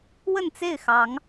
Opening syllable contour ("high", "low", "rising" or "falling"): falling